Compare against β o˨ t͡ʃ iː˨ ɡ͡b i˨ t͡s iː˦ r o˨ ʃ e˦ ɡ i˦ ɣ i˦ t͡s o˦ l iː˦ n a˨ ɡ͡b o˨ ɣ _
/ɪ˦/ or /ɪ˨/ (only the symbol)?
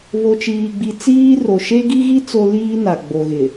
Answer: ɪ˨